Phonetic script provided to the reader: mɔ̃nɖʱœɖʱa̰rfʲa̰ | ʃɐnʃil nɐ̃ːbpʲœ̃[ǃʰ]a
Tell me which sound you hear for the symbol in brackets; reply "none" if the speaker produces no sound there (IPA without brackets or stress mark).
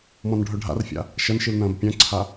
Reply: ǀʰ